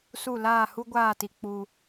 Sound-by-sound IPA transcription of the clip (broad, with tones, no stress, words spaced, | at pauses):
su˦˨ laː˦˨hu˦ɡʷaː˦˨ti˨ k͡pu˦